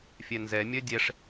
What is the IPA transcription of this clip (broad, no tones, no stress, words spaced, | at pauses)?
fʲɛnzɛ mʲœdʲɛʂ